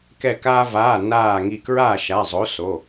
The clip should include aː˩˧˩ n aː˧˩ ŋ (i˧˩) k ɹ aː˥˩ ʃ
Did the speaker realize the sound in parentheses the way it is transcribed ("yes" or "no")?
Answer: yes